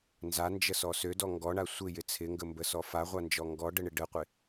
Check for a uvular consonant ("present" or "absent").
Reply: present